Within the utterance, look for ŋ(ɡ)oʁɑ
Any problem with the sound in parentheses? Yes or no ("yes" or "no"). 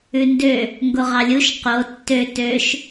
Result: no